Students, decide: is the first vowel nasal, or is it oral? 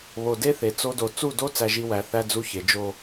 oral